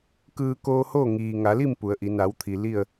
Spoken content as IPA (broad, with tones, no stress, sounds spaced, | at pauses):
k ɯː˧ k oː˧ h oː˥˨ ŋ iː˩ ŋ a˩˧ l i˥˨ m p u˩˧ ə̯ ʔ i˩˧ n a˩˧ w t̪ʰ i˩ l i˥˨ ə̯